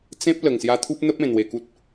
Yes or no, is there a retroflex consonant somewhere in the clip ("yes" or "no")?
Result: no